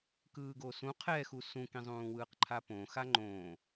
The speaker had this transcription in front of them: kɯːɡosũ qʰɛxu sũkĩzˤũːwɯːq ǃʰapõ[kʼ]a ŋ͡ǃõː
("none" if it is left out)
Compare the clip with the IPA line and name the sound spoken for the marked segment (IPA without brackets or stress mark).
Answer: x